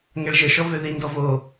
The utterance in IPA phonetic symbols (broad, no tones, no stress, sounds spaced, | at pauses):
ŋ ɛ ɭ ʒ ə ʃ ɔ v ø ð i n d ɔ v o